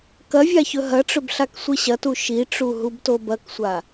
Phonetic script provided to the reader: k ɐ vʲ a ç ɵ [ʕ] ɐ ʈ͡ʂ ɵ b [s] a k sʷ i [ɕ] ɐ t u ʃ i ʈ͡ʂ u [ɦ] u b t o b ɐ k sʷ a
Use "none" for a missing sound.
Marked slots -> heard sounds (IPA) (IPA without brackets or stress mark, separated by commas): ɦ, ɬ, ɕ, ɦ